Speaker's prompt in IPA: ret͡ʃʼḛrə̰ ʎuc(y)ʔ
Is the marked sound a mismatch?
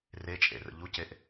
yes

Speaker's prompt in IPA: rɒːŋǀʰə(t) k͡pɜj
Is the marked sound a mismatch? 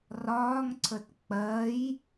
no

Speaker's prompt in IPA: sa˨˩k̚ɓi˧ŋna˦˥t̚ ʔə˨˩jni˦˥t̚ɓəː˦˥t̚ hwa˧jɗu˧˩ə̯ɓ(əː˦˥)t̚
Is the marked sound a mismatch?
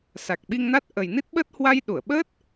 no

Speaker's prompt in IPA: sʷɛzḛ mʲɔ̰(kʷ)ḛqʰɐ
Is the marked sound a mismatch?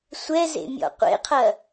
yes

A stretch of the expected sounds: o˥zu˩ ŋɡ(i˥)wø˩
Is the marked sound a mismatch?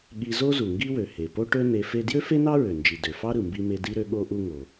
no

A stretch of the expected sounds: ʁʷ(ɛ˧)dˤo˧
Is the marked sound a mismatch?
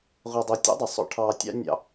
no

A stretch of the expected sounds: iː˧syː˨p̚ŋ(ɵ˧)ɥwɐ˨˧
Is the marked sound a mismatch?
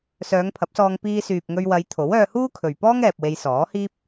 no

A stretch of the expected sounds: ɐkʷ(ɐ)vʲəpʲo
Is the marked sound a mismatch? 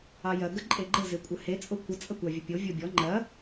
yes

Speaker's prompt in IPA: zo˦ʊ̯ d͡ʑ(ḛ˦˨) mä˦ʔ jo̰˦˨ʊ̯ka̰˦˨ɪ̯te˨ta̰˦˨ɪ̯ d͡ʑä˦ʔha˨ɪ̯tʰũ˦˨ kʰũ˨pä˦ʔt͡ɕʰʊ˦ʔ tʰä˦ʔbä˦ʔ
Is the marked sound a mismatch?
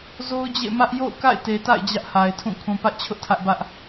no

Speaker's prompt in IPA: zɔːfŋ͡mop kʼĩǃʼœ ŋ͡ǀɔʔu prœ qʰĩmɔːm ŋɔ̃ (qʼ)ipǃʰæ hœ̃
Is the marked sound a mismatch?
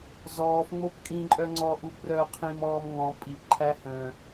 yes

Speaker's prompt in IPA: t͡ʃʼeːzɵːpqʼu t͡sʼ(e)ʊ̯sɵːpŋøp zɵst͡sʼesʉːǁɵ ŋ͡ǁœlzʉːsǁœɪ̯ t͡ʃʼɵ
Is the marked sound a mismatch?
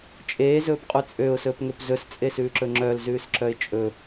yes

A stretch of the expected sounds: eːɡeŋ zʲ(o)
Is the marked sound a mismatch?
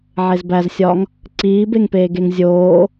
yes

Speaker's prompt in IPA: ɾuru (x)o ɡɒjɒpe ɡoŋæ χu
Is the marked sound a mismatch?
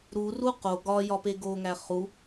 yes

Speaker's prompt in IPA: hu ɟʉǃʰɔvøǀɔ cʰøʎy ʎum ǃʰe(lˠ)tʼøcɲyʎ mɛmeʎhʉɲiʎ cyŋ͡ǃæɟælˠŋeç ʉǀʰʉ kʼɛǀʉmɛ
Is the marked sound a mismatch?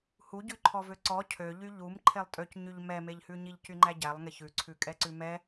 no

